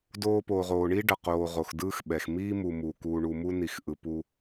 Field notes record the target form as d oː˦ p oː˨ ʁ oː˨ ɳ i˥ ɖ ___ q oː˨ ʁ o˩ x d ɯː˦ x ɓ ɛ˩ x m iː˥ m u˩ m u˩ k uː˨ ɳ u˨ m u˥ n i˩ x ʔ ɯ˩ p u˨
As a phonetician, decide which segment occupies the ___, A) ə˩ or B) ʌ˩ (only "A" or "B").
B